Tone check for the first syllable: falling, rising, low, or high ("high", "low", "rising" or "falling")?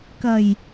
low